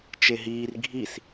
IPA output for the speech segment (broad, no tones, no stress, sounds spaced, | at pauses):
t͡ʃ e ɦ iː r ɡʱ i s